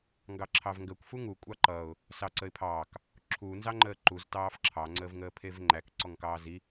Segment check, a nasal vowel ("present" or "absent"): absent